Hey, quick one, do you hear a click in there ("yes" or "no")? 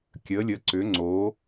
yes